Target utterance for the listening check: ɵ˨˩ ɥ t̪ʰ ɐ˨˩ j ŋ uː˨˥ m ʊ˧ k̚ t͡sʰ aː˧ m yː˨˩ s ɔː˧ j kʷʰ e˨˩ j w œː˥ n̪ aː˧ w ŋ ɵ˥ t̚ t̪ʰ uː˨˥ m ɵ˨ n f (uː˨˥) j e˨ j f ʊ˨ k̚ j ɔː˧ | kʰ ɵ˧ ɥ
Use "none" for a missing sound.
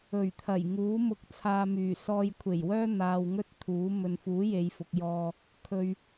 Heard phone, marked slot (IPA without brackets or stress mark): uː˨˥